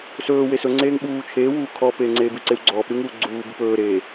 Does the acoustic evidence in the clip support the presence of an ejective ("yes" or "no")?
no